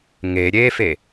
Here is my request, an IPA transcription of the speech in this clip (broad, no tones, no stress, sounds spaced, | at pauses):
ŋ e ɾʲ e f e